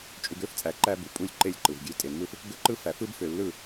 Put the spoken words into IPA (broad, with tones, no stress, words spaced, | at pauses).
t͡ʃʼu˨ɡø˦ft͡sʼæ˨ ǃæ˦bu˨pʼu˦lʲ ǃe˦lʲǃɯ˨vɡʲø˦ tʼe˨mːɯ˦f | ɡø˦ǃɯ˦fæ˨ fɯ˦bfø˨lːɯ˦˨